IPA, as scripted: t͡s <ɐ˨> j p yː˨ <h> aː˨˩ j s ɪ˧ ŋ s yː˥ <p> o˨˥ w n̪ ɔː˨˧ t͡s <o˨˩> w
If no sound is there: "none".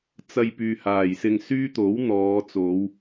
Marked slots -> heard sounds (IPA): ɐ˧, h, t̪, o˨˧

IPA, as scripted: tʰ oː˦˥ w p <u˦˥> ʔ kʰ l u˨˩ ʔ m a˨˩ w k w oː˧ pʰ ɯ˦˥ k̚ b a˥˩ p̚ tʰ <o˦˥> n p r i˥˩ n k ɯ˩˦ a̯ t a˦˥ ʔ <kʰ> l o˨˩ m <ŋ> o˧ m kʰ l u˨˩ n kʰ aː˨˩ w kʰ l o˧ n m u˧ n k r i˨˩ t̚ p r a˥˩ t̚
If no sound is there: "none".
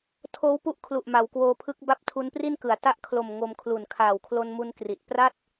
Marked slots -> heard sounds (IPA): u˦˥, u˦˥, kʰ, ŋ

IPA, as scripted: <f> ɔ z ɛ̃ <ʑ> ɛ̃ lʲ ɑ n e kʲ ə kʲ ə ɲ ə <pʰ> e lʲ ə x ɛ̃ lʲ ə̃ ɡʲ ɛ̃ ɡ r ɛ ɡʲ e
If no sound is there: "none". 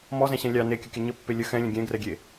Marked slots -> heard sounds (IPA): m, ɕ, pː

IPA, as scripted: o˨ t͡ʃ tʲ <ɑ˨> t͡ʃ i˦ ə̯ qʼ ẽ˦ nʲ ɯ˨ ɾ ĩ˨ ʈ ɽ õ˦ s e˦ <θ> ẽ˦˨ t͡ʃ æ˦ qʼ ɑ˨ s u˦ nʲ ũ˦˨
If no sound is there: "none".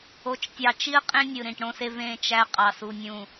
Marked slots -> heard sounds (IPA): ɑ˨, v

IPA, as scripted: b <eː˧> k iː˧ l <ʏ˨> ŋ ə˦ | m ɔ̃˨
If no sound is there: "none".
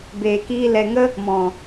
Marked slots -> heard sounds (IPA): eː˨, ɛ˨

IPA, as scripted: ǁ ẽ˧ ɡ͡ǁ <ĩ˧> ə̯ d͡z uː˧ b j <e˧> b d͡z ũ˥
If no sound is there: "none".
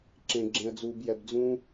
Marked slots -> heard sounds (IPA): ẽ˧, ɛ˧

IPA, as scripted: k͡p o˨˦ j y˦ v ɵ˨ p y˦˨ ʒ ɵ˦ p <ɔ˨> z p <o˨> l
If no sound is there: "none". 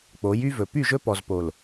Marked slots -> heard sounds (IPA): ɔ˨, o˨

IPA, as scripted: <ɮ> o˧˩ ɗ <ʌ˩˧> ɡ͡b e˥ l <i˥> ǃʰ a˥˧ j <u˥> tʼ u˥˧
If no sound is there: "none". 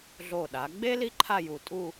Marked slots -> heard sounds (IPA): ɮ, a˩˧, i˥, u˧˩

